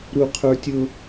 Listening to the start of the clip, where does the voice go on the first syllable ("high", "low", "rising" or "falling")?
high